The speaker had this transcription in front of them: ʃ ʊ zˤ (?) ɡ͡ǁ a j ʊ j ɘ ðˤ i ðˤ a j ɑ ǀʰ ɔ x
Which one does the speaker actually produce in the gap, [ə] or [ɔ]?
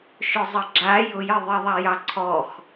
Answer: ə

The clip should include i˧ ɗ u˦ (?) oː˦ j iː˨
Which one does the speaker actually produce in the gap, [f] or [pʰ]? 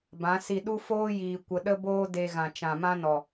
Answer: f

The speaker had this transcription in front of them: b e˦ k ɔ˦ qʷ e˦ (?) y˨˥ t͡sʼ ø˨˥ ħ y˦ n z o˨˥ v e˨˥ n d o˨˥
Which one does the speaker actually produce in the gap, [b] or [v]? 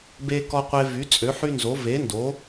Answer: v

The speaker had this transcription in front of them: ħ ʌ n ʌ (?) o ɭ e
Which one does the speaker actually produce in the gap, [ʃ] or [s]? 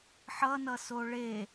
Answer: s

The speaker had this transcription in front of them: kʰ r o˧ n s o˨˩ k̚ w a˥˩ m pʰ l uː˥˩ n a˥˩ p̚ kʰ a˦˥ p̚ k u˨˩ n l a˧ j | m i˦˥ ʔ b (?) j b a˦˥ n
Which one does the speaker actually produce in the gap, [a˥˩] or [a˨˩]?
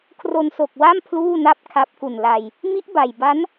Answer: a˨˩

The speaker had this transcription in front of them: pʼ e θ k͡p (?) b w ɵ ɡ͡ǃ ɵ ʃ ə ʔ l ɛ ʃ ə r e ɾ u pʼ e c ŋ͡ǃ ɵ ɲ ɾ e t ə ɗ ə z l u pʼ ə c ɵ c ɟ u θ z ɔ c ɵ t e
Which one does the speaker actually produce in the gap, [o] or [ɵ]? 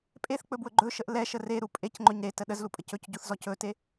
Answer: ɵ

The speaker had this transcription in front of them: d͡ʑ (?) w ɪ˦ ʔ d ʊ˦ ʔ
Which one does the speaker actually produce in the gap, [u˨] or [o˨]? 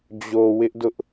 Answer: o˨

